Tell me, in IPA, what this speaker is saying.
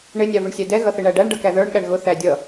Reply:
ɳ ɪ nʲ ɑ v ɪ ɳ sʲ æ d ɛ ɣ ʌ θ ɪ ɳ æ ɖ æ ɳ ɖ ʌ k æ ð ə˞ ɳ ɠ æ ɳ ɣ ʊ θ æ dʲ ʌ

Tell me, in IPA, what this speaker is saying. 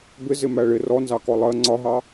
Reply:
b ɪ z ɪ m æ ɭ ɪ r ɔ n z ɑ k ɔ lˠ ɜ ŋ͡ǀ ɒ ɦ ɑ

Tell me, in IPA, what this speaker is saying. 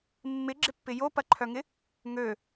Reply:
mː ɪ ɡ͡ǁ ɪ pː ɪ j o p ɐ ǃʰ œ ŋ ɪ | ŋ ø

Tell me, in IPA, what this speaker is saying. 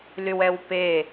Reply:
l y w ɛ w p e

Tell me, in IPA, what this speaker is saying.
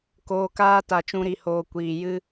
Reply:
k oː˨ k aː˧ t a˨ t͡ʃ ũ˧ ɾ i˨ h oː˨ kʷ iː˨ j ɨ˦

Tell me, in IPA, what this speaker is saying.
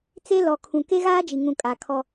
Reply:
t͡s e˦ l ɔ˨ kʰ ũ˨ k e˦ ɣ aː˦ d͡ʒ i˨ ŋ ũ˨ kʼ a˨ kʰ ɔ˦

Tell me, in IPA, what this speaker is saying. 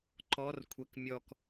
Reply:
ǃ ɔ r kʷʰ ɛ k mʲ ɔ k

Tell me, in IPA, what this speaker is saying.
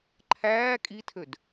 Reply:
ǃʰ æː kʼ i tʰ ø d

